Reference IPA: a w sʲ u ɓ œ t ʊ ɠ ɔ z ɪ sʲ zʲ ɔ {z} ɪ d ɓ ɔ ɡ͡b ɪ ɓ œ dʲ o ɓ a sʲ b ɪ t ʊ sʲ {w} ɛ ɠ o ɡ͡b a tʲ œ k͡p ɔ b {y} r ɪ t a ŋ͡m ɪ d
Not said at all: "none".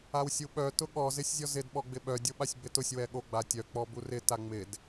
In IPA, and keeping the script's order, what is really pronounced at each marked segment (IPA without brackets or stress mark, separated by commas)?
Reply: z, w, u